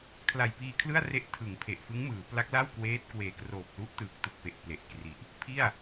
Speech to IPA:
kʰ l a˨˩ j p iː˧ kʰ l ɯ˥˩ a̯ r e˦˥ ʔ tʰ ɯ˩˦ ŋ pʰ e˨˩ ʔ f ɯ˦˥ ŋ m ɯː˩˦ p l a˦˥ k̚ l a˥˩ w k w eː˦˥ t̚ k w eː˨˩ k r oː˨˩ p̚ l u˦˥ ʔ t ɯː˨˩ k̚ t u˨˩ k̚ p e˨˩ ʔ p l e˨˩ ʔ k r i˨˩ ʔ | pʰ i˥˩ a̯

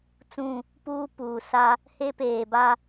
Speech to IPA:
t͡s ũ˦˨ | p uː˦ p uː˨ s a˦ | h e˦ p eː˨ b a˦

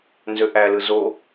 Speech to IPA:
n z ø ʔ æ l ɯ z o

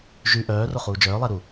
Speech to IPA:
ʒ y ʔ œː r o χ uː d͡ʒ œː lˠ ɛ ɾ u

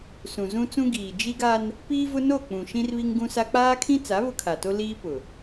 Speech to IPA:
s ũ˨ z ũ˦ t͡s ũ˦ ɡ iː˨ d͡ʒ i˦ ɡ a˦ n | p iː˦ v ʊ˦ n o˦˨ k͡p ũ˨ ʃ ĩ˦ r β i˦ ŋ ɡ ũ˦ s a˦ k͡p aː˦ kʰ ĩ˦ t͡s a˨˦ β ʊ˦ kʰ a˨ t o˦ l iː˦ p ʊ˨

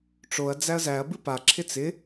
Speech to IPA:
ʈ͡ʂ o ɐ̯ d͡z æ ɐ̯ z æ ɐ̯ b ɨ p a ǁʰ ɪ t͡s ɪ

